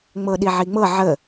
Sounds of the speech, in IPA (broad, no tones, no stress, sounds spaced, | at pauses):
ŋ͡m ɤ ɗ i ʕ i ŋ͡m ɤ ʕ ə